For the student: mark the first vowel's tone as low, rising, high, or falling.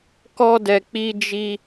high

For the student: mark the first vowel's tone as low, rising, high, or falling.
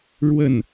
falling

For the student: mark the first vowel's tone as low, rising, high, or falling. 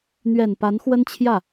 low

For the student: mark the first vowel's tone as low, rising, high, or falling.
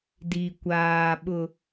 low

